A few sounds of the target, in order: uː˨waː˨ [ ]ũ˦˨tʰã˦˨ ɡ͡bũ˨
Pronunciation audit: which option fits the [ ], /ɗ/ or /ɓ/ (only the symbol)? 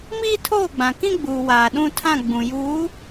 ɗ